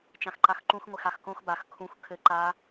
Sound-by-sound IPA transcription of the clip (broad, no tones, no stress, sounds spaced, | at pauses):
t͡ʃ ã x ǃ a x ǃ ũ x ŋʷ ɪ x a x k õ x b a x kʰ ũ x kʰ ɘ ǃ a